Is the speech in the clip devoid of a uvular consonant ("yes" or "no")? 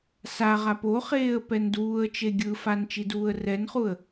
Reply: no